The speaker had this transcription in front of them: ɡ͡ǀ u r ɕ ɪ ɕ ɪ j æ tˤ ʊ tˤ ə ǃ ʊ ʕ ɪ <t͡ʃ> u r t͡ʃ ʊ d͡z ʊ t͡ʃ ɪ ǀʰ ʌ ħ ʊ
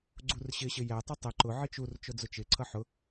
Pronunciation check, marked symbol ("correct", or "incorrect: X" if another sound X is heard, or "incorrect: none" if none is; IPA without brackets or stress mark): correct